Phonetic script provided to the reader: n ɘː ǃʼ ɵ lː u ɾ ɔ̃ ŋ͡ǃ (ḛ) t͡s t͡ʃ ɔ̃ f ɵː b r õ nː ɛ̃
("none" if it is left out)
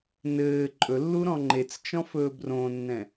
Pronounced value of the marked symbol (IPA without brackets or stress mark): e